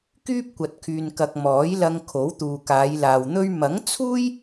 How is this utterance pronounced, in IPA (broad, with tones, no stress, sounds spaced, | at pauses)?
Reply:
k yː˥ p̚ kʷ ɐ˨ t̚ kʰ yː˨ n k ɐ˨ k̚ m ɔː˨˥ j l ɐ˧ ŋ kʰ o˨˥ w t̪ uː˨ k aː˨˧ j l aː˨ w n̪ ɵ˥ ɥ m ɐ˨˥ ŋ t͡sʰ uː˥ j